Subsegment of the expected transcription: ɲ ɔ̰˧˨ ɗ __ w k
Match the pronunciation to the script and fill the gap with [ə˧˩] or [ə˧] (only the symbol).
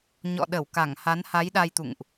ə˧˩